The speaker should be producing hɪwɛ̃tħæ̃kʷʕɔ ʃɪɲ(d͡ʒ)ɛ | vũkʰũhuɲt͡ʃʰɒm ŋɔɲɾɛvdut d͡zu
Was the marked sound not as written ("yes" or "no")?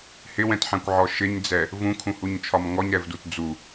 yes